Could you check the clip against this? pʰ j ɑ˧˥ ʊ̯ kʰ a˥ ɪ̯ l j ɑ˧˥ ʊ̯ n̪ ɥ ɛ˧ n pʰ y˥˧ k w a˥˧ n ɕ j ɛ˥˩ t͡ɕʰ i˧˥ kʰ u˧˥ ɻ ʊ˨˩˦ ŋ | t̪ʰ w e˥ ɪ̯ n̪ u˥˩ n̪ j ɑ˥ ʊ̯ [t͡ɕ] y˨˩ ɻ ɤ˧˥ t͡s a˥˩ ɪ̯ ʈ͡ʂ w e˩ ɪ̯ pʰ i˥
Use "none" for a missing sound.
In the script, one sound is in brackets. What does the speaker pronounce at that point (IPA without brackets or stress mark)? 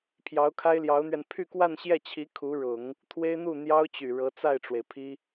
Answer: t͡ɕ